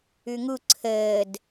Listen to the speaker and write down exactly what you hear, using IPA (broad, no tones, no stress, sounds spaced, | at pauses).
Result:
ʉ ŋ u ǀʰ əː d